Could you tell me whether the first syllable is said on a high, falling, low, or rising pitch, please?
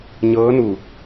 rising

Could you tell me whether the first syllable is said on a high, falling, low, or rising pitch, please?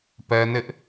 high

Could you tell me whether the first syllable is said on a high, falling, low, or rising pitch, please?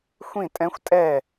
falling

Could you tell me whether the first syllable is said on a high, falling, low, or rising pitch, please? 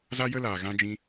high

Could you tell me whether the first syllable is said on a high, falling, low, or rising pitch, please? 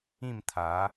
falling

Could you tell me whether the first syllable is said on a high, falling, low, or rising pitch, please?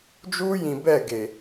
high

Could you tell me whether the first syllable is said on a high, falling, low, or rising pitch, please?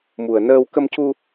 low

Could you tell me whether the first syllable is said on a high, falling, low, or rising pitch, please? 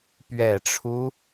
low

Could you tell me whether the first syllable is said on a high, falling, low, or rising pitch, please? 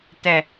low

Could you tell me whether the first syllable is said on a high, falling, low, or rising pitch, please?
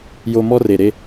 high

